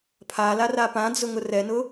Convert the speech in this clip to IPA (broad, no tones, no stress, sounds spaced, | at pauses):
pʰ a l a r a p ã d͡z ʊ ŋ ʊ r ɛ n ʊ